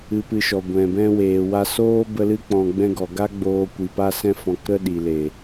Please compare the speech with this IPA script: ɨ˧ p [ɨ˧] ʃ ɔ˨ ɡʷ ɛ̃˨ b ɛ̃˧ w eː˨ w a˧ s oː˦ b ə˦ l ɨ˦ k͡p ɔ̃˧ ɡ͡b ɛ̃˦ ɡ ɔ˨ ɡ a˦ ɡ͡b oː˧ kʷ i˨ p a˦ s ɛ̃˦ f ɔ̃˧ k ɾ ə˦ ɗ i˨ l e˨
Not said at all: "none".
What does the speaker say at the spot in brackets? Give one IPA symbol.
ɨ˧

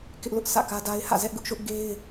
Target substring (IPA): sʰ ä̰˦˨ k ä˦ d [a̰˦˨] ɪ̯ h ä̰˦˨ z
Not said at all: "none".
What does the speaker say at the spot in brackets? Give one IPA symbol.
a˦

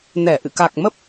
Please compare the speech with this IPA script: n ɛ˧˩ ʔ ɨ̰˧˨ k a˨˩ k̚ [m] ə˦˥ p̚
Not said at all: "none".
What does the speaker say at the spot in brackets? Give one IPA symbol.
m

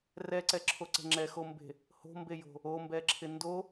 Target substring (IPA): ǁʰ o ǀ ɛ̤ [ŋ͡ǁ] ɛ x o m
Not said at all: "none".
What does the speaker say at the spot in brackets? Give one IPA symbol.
ŋ͡ǁ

